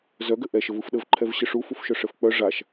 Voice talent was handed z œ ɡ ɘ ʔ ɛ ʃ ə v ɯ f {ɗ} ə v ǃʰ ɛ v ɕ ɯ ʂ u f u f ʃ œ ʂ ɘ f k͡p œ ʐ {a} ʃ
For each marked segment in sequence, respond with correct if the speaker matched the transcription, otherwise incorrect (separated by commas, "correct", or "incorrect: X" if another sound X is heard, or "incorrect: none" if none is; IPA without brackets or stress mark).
correct, correct